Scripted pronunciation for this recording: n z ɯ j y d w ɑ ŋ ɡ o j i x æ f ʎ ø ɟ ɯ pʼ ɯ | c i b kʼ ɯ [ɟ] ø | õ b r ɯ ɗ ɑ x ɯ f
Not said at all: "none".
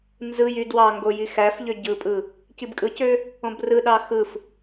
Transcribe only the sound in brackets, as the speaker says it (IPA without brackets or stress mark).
c